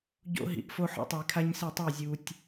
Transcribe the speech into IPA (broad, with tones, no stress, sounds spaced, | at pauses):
ɟ o̰˦ ɦ ḭ˨ ʔ f o˦ ħ ɔ̰˦ tˤ u˨ j kʰ a˦ ɲ s ɪ˦˨ tˤ i˦˨ zʲ u˨ tʲ